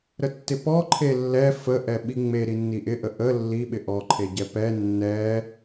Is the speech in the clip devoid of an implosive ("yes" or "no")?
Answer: no